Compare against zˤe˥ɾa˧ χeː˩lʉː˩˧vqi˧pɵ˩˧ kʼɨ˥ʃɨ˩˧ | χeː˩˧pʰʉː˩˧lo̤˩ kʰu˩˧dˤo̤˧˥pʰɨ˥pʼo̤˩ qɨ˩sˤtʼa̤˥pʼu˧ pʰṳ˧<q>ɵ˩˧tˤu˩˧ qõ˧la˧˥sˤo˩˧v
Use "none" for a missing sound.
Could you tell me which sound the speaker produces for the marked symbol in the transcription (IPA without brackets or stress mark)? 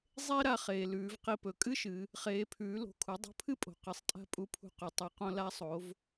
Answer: q